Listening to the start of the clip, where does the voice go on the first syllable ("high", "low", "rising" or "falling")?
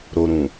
low